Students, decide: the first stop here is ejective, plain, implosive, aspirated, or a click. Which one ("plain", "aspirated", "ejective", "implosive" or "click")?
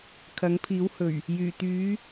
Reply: aspirated